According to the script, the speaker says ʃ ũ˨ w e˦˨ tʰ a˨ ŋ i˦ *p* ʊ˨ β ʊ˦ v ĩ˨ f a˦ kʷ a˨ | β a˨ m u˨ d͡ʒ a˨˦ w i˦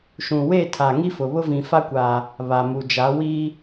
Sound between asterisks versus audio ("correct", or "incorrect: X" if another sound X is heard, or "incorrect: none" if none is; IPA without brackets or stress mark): incorrect: f